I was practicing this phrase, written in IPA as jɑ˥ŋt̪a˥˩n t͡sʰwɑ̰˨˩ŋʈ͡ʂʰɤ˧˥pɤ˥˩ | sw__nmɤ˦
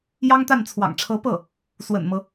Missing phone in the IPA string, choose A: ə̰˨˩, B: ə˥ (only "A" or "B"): A